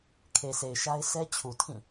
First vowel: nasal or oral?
oral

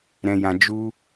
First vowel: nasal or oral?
nasal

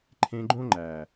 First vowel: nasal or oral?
nasal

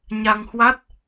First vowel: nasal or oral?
oral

